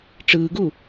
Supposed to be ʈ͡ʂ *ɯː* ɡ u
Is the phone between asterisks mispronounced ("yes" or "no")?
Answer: no